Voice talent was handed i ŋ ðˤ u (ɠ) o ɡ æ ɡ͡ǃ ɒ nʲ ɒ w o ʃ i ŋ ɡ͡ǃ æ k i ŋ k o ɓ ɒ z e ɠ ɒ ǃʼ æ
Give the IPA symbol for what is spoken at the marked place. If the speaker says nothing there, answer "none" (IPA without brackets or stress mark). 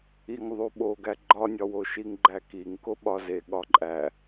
ɓ